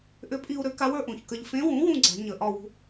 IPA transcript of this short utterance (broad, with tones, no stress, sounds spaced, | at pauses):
ʔ ʏ˧˥ pʼ i˧ u̯ ɾ ʏ˩˥ k a˧˥ w ə˞˧ ʔ ũ˨˩ ç k ə˧ ʎ f ẽ˧˥ w ũ˩˥ w ũ˧ ɡ͡ǀ a̤˨˩˦ ɲ ə˨˩ ʔ ɒ˥˧ w ṳ˧